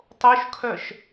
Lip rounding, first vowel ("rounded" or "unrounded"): rounded